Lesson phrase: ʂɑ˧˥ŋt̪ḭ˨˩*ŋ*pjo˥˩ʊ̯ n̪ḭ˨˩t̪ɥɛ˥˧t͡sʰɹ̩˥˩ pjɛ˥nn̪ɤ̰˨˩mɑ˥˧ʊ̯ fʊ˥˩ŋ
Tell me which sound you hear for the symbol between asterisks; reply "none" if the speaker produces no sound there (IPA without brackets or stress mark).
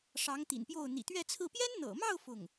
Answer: n